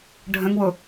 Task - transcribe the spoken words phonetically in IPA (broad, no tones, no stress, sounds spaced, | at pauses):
ɖʱ ə̃ ŋ w ʊ